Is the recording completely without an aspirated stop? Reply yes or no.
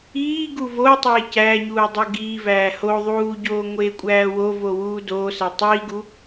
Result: yes